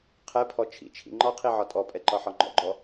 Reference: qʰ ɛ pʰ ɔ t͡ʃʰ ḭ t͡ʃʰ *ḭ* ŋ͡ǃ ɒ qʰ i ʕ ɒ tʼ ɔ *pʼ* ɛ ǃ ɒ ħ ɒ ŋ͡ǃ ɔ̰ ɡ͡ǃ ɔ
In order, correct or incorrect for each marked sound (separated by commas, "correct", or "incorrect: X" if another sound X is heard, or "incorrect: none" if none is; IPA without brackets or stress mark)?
correct, correct